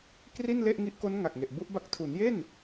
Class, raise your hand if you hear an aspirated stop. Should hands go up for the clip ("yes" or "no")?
yes